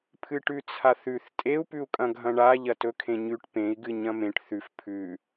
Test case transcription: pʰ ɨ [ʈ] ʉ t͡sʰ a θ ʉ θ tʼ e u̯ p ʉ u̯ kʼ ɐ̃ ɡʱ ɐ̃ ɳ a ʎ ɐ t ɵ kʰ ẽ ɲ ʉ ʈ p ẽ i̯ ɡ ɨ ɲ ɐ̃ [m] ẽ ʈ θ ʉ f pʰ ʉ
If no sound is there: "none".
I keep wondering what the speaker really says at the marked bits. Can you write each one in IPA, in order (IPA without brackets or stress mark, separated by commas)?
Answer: ʈ, m